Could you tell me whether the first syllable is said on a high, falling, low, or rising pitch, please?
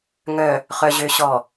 low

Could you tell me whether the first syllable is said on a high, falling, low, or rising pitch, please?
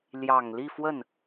low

